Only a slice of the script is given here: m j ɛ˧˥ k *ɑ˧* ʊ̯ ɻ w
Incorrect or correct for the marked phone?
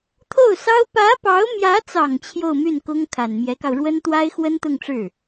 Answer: correct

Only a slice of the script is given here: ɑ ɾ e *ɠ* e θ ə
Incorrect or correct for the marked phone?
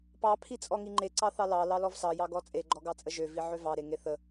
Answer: incorrect: ŋ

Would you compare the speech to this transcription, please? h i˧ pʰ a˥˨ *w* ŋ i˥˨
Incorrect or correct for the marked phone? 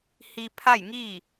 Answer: incorrect: j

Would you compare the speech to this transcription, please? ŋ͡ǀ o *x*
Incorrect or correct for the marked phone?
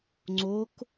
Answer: incorrect: k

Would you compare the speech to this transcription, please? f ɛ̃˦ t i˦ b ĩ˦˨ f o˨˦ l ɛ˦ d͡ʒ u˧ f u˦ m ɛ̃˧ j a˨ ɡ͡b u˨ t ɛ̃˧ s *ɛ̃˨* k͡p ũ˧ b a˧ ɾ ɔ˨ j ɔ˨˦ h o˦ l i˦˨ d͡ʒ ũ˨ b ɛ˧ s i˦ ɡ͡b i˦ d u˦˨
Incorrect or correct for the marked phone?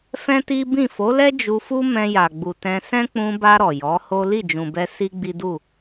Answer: incorrect: ɛ̃˦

